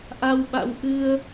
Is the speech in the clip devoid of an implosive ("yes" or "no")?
no